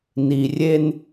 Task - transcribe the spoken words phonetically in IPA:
ni˨rʲe˦n

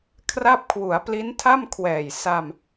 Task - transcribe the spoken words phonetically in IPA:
kʰra˥˩p̚ kʰwu˩˦a̯pli˦˥ntʰa˥˩m kʰwɛː˨˩j sa˧m

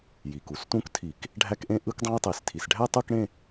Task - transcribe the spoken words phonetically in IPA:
ji˩ku˩stũ˦˥ktʰi˧˩˧k | ɖʱæ˦˥kʔẽ˦˥ ʔɯ˦˥kdˤɑ̃˦˥jtˤe˩˧stʰi˩s ɖʱæ˥˧tˤɯ˥˧kɽẽ˥˧

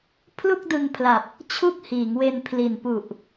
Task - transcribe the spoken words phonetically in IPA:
pʰlu˥˩k̚dɯ˧ŋpʰla˨˩p̚ | t͡ɕʰu˥˩k̚hiː˩˦ŋwe˧n pʰli˨˩npu˨˩ʔ

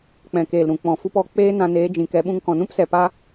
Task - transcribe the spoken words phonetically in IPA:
k͡pɛ̃˨keː˨lɾũ˨ k͡pɔ̃˨fu˧pɔ˧ k͡peː˦nã˧neː˨˦ d͡ʒĩ˨kɛ˨˦ɓũ˧ŋ kɔ̃˨nũ˦psɛ˨ pa˦

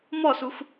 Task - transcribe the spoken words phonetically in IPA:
mɔsux

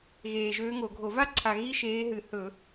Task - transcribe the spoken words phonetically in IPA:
ɣeː˨˩ʒøː˧˥ŋo˧˩˧ɡʱo˧˩˧ va˥ǀʰa˨˩ ɣi˥ʃeː˧˥ɦɨ˧˩˧ hɵ˧˩˧

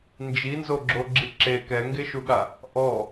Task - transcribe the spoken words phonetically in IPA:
nd͡ʒinzoɡ͡ǁoɡ͡ǁi ǁe kɛŋɡeʃuɠa | ʔɔ

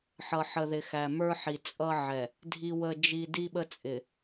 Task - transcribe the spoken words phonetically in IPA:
ħʌ˨ ħə˨ðɪ˨xæ˨mə˞˦ ħi˨t͡sʼʌ˦ʕɛ˨ | dʱi˦wə˦d͡ʒi˦ di˦ɓə˦t͡sʼɪ˨

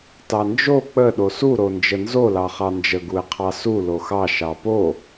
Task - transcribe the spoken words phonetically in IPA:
tɑnd͡ʒo k͡pə ɗosu ɾond͡ʒənzo lɑχɑnd͡ʒə ɡuɪ̯qʰɑsu loxɑ ʃɑpo

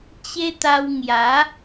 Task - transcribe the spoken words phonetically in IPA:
t͡ɕe˦t̪a˧w ŋja˨˦

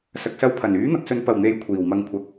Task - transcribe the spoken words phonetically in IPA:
sɐ˨k̚sɐ˧wpʰɐ˨˩n yː˨˥n̪ɐ˨k̚sɵ˨˧n pɐ˨˩wn̪e˨˥j kʷʰiː˨˩wmɐ˧ŋ kʷʰɐ˨˥k̚

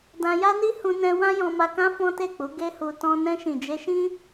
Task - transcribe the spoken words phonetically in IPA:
dã˧ja˦ni˦ hũ˧nɛ̃˧ wã˦jɔ̃˧ma˧kã˦ fɔ̃˦te˦˨k͡pu˨˦ ɡe˦hu˧tɔ̃˦ nɛ̃˧ʃĩ˨d͡ʒe˧ʃĩ˦

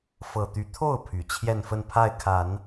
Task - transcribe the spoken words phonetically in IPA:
fɤ˨˩t̪y˧˥ t̪ʰo˥˩ʊ̯ pʰy˨˩t͡ɕʰjɛ˥˧nfə˥˧n pʰa˥˩ɪ̯kʰa˨˩˦n

